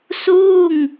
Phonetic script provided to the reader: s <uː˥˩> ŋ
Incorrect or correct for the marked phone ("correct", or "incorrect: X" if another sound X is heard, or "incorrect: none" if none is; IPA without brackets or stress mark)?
correct